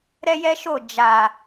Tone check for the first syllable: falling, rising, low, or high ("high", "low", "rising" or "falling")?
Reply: high